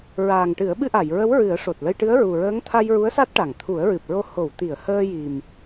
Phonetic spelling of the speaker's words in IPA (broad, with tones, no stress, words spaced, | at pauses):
ɹaː˨˩ŋʈɨ˨˩˦ə̯ɓɨ˧ʔa˨˩˨j ɹə˧˥wɹɨ˨˩˦ə̯ ʂo˨˩t̚lə˧jʈɨ˧˥ə̯ ɹu˨˩ɹəː˧˥ŋ t̪ʰa˧jɹu˧˥ə̯ sa˦˥t̚ʈa˨˩˨ŋ t̪ʰu˨˩˦ə̯ɹɨ˨˩p̚ɹo˧˥ ho˨˩˨wt̪i˨˩˨ə̯ həː˧ji˨˩m